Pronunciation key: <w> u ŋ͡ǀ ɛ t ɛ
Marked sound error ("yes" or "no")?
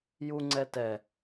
yes